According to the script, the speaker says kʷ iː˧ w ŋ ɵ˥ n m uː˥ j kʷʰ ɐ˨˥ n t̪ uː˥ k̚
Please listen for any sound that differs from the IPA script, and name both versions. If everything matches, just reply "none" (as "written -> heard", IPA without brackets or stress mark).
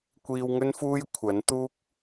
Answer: m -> f